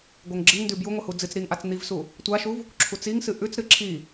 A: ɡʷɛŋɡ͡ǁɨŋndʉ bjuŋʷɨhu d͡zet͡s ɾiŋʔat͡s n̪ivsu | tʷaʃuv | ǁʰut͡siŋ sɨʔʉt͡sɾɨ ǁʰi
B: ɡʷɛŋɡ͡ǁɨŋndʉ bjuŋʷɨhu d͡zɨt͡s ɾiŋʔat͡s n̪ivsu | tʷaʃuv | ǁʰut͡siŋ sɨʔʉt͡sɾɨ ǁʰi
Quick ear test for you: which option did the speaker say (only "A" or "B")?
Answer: B